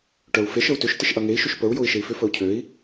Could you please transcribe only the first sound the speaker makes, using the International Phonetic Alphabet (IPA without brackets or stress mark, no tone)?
ʈ